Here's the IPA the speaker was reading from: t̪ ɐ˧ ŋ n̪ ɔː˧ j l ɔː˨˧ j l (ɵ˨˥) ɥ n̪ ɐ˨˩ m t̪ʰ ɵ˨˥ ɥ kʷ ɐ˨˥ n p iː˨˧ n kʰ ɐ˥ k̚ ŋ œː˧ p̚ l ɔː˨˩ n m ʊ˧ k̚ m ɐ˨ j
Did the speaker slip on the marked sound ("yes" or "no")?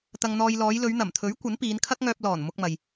yes